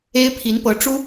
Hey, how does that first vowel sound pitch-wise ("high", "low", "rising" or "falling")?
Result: high